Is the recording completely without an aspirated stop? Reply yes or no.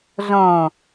yes